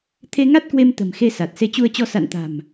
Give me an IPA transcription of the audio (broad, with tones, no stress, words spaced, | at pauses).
t̪ʰe˧ŋa˦˥t̚kwe˧m t̪ə̤˨˩mxe˧ sa˨˩t̚ se˨˦t͡ɕu˧ə̯t͡ɕɔ˧ sa̰˧˨nt̪a̤˨˩m